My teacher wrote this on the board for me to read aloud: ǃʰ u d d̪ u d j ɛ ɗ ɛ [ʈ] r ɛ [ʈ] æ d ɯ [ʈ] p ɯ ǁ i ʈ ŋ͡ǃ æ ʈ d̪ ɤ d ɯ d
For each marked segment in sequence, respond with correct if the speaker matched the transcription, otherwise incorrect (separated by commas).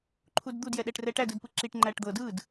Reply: correct, correct, incorrect